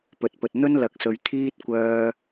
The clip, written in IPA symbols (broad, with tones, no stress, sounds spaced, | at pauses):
p ɵ˨ t̚ p ɵ˨ t̚ n̪ ɵ˥ n l ɐ˨˥ k̚ s ɵ˨ ɥ t̪ʰ iː˥ t̚ kʷ œː˧